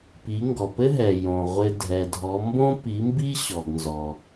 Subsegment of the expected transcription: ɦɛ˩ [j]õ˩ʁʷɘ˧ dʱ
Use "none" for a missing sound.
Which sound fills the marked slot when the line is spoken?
j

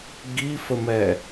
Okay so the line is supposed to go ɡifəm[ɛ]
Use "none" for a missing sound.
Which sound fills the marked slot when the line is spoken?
ɛ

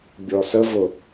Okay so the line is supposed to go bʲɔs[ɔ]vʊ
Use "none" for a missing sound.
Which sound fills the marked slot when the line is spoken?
ə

